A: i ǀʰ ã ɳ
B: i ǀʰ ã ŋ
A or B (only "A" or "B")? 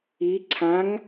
B